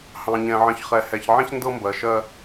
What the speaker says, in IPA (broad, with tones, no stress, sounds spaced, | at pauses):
h ɑ̃˨ ɲ ɛ̃˨ ʕ ə̃˨ ç χ ɛ˨ h ɛ˨ ç ʕ ɛ̃˦ ç n d ɤ˦ m b ɜ˨ ʃ ɜ˦